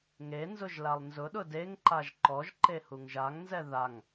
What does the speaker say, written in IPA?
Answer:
ŋenzʊʒ lalˠnzʊɗʊ deŋǃaʒ ǃɔʒǃe huŋʒaŋnzɛ ðaŋ

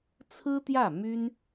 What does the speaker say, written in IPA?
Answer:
t͡sʰɹ̩˥t̪jä˥˩ my˥n

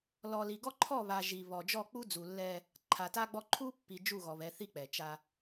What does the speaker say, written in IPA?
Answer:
lɔ˨li˨ɡɔ˦ ǃʰɔ˦˨βa˨ ʒi˨βɔ˨ d͡ʒɔ˦˨ k͡pu˦d͡zu˨lːɛ˦ | ǃʰa˨ta˦ɡ͡bɔ˦ ǃʰu˦pːi˨ d͡ʒu˦˨ɣɔ˨βɛ˨˦ θi˦k͡pɛ˨t͡ʃa˦

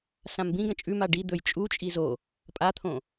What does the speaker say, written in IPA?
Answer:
sãmbĩɡɐ̃ t͡ʃʼʉma ɖi d̪ɵj t͡ʃʼut͡ʃʼi zo | pʼat̪ʰõ

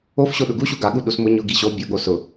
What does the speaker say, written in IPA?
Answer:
ofɕo ɗʊɡuɕu ɡaɠu ɗusmʊ ɲʊ ɡiɕo bʲʊɠo sʊ

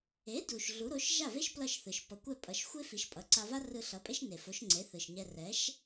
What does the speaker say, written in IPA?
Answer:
e˩˥du˩ʃ ɮu˩˥ɾo˩˥ʃ ʒa˥˩ve˥ʃ plʌ˥˩ʃθɯ˩ʃ pʌ˩ kʷɛ˥˩pʼʌ˩˥ʃ xʷe˥fi˩˥ʃ pʼʌ˩˥ǀa˧va˥ rɯ˧ɬʌ˩˥pʼe˥ʃ ne˩fo˩˥ʃŋ͡ǀe˩˥ θɯ˩ʃɲɛ˧ rɛ˩˥ʃ

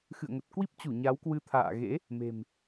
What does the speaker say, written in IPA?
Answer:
xɨ̰˧˨ə̯ŋə˨˩t̚kwi˦˥p̚t͡ɕu˧˩ ɲa˨˦wkwɨ˧ t̪ʰa̰ː˧˨ ɣḛ˧˥ | me̤˨˩m

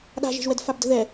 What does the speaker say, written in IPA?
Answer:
ɗa̤ʒe̤ʒwɛdfab də̤ðɛ

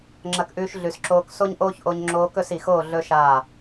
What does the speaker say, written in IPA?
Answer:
ŋ͡ǁɐ˧kʔʉː˧ʃ ɮʉ˨sǁoː˧k so˦ɲʔoː˦çʔo˧ɲ ŋ͡ǁoː˧kɵ˦˨si˨xoː˦˨ ɮɵ˦ʃaː˦˨

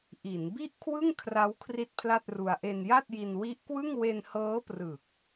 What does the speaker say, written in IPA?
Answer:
ʔi˩˦n bi˥˩ʔkʰwɯ˥˩ŋ kʰra˦˥w kʰri˥˩t̚pʰla˥˩t̚ru˧a̯ ʔe˧nja˥˩t̚ji˧n wi˦˥ʔkwɯ˥˩ŋ we˧nhɤː˦˥prɯ˨˩k̚

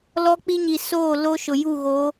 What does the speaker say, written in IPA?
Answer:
lɔ˦k͡pi˦ ɲi˨soː˦˨lo˦ ʃʊ˨ju˦˨ɣo˨˦

